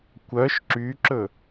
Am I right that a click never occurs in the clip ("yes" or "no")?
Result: no